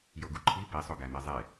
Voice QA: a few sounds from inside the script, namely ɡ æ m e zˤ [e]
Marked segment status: correct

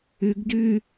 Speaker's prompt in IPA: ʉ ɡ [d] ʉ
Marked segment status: correct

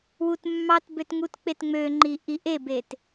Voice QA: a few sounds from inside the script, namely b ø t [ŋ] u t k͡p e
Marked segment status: correct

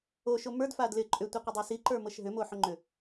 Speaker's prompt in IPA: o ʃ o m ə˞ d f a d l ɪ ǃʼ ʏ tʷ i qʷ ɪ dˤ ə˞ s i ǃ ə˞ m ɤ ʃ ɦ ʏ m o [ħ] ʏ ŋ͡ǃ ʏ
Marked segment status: correct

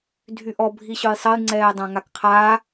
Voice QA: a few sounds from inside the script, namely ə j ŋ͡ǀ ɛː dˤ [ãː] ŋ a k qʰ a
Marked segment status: incorrect: ã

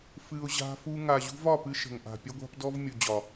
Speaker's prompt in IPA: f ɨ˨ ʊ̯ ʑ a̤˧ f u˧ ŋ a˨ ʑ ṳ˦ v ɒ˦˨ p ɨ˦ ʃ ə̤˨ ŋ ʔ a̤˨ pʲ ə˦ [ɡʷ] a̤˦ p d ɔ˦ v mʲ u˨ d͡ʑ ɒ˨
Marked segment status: correct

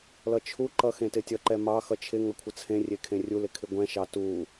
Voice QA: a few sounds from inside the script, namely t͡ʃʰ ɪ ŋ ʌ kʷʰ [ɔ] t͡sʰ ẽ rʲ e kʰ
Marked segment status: incorrect: ʌ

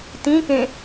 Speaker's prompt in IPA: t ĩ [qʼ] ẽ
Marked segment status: incorrect: k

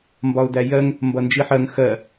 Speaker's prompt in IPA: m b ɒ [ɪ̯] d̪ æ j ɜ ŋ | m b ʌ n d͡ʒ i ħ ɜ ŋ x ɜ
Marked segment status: incorrect: ʊ̯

